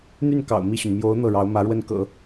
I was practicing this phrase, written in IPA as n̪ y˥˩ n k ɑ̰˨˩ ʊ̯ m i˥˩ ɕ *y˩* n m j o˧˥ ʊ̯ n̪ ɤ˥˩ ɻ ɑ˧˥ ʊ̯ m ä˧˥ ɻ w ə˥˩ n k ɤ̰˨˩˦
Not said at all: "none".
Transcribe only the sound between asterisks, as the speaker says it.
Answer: y˩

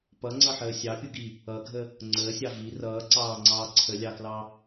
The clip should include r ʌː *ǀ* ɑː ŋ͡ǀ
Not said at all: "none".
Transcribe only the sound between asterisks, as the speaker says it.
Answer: ǀ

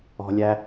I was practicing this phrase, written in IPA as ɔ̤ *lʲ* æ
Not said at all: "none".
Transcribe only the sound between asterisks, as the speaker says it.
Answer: lʲ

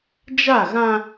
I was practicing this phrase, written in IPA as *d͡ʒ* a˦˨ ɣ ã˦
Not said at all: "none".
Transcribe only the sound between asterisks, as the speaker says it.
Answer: d͡ʒ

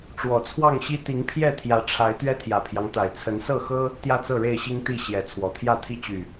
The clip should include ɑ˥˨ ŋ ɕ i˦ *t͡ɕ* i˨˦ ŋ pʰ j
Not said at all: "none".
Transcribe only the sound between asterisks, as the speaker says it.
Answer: t̪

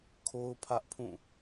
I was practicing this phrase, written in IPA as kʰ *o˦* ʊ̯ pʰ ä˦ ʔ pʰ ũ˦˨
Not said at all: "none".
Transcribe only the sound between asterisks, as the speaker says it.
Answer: o˦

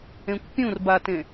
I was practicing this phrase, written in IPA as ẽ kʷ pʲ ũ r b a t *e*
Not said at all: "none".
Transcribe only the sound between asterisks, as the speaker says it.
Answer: ẽ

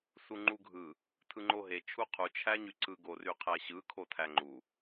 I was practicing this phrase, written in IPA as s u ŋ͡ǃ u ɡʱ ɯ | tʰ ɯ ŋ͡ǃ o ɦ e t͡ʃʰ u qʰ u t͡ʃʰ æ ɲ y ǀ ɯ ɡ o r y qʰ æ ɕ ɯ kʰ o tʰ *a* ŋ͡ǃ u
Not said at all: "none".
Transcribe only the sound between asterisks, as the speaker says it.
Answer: æ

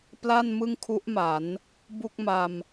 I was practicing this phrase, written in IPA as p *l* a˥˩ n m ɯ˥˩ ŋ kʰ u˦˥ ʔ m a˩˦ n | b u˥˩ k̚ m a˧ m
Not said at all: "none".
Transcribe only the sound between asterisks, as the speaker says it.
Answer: l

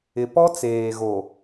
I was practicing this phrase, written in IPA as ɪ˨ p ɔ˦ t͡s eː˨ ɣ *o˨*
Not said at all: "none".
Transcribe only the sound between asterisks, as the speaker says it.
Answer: o˨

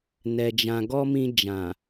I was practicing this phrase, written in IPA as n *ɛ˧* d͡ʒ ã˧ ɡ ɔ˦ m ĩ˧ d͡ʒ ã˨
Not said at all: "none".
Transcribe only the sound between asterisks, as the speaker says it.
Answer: ɛ˧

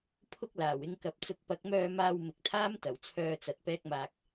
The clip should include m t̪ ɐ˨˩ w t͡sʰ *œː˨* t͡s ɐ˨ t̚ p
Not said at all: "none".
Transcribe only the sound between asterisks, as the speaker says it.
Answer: œː˧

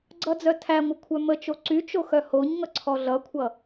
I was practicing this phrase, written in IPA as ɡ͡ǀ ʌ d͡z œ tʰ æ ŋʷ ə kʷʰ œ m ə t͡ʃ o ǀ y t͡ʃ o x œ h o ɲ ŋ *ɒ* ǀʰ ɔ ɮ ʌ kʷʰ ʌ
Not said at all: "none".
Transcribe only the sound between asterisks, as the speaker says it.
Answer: ʌ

